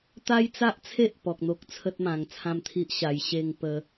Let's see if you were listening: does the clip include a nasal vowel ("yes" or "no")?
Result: yes